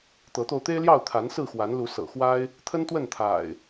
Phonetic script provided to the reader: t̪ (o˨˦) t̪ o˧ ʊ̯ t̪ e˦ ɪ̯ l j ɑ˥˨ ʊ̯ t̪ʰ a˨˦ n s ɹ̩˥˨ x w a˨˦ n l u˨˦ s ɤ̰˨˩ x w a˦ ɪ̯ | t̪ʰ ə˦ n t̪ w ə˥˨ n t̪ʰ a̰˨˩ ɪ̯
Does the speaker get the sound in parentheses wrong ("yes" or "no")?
yes